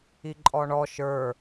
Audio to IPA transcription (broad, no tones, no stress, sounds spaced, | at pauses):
i ǃʼ ɔ ɳ ɔ ʃ ə˞